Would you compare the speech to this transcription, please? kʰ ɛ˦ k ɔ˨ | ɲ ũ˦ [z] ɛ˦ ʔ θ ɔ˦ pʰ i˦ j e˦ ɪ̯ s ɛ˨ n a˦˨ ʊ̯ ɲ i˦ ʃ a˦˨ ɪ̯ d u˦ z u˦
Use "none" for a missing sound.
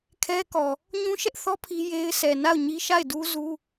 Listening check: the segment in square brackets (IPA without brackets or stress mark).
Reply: ʃ